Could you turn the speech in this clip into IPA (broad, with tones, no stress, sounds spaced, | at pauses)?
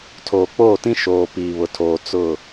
tʰ oː˨ k͡p oː˦˨ t ĩ˦ ʃ oː˨ p iː˨ β ʊ˨ tʰ oː˨ t͡s ʊ˦˨